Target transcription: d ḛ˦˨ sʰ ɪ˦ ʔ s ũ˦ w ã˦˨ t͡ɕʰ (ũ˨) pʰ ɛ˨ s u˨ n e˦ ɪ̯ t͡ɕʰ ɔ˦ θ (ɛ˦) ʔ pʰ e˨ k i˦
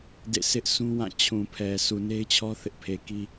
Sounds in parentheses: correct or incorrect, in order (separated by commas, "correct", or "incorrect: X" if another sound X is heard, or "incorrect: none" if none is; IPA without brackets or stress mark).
correct, incorrect: ɪ˦